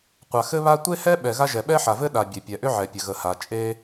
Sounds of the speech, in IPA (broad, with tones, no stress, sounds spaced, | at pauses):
qʷ a˩ x ɘ˥ β a˥ tʷ e˥ h ɛ˥ ɓ ɛ˩ ɣ a˥ ʒ ɛ˩ ɓ ɛ˥ ħ a˩ v ɘ˥ ɗ a˩ bʲ e˩ pʲ ɛ˩ ʔ ʏ˥ ʕ ɛ˩ pʲ ɘ˩ ɣ ə˩ h a˩ t͡ʃʼ e˥